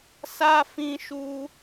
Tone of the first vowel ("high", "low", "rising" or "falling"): high